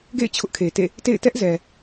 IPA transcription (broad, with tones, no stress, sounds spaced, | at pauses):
ɡ ḛ˦˨ ɪ̯ t͡ɕʰ ʊ˦ ʔ kʰ e˨ t ḛ˦˨ | t ḛ˦˨ ɪ̯ t ɛ˦ ʔ z ɛ˨